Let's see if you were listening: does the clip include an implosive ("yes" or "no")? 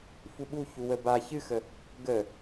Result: yes